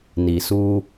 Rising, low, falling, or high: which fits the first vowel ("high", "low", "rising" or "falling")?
low